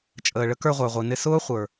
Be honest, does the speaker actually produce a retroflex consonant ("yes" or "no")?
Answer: yes